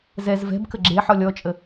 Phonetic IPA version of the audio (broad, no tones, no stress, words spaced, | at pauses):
zɛz vɛ̤bkə ɡ͡ǁeħɔlʲ ɔt͡ʃʼə